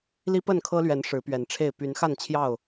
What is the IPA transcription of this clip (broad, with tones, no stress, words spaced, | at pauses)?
li˦pə˥˨nkʰɤ˦lɥɛ˨˦n ʂɻ̩˨˦pɥɛ˨˦nʈ͡ʂʰe˥˨ɪ̯ py˨˦nxa˥˨nt͡ɕʰjɑ˥˨ʊ̯